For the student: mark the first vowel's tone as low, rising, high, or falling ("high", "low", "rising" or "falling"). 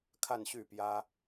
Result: falling